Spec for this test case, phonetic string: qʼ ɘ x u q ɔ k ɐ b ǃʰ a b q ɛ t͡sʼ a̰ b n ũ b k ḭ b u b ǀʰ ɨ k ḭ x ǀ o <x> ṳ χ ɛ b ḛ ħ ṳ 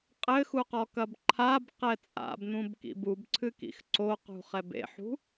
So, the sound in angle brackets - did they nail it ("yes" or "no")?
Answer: no